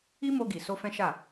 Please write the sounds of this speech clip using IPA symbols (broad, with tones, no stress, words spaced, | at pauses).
i˦mo˧ ɡi˨so˧ fɛ̃˦ʃa˦˨